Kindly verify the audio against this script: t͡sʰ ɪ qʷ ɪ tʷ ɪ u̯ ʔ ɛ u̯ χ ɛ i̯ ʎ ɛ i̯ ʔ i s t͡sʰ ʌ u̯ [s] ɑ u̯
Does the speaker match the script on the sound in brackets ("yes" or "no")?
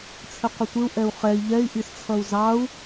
no